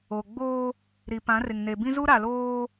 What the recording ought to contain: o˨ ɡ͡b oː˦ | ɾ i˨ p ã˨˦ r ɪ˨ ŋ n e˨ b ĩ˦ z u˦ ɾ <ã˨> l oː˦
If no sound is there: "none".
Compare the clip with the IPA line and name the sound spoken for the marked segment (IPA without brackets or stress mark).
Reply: a˨